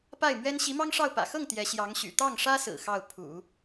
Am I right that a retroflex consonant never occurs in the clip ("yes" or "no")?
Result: no